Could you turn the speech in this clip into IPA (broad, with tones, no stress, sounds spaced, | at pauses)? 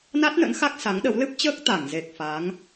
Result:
n a˦˥ t̚ n ə̰˧˥ n x a˦˥ k̚ s a˨˦ ŋ ɗ ə˨˦ w l ɨ˦˥ p̚ t͡ɕ əː˦˥ k̚ t̪ a˧˩ ŋ z e˨˩ k̚ f a˨˦ ŋ